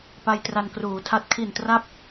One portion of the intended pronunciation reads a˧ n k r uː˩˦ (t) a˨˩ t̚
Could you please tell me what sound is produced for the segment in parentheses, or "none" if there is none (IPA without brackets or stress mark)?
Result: tʰ